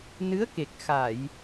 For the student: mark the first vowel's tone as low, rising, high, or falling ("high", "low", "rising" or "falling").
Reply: rising